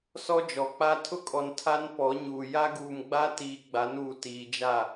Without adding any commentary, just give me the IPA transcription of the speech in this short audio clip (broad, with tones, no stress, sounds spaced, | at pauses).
s ɔ˦ d͡ʒ ɔ˨ k͡p a˦ tʰ ʊ˦ kʼ ɔ˨ n tʰ a˦ n p ɔ˨˦ ɲ uː˨ j a˦ ɡ uː˨ m ɡ͡b a˦ t iː˨ ɡ͡b a˨˦ n uː˨ t iː˨ d͡ʒ a˦˨